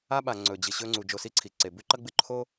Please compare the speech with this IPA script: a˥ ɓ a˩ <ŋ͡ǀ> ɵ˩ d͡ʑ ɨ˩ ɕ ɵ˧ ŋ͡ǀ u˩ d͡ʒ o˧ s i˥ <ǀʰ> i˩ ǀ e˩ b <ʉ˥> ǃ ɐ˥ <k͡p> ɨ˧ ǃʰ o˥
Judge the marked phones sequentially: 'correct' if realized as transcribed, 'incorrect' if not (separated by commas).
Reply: correct, correct, correct, incorrect